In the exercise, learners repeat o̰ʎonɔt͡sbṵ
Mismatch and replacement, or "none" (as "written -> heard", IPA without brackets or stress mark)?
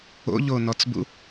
none